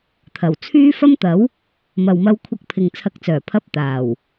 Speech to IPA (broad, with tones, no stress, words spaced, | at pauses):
t̪ʰɐ˨˩w t͡sʰyː˥ fɐ˥mt̪ɐ˨˥w | mɐ˨wmɐ˧wkʷʰɐ˧k̚pʰɪ˨ŋ t͡sʰɐ˧k̚t͡sœː˨˩ pʰɐ˧p̚ t̪aː˨˩w